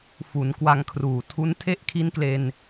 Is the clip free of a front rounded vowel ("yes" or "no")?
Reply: yes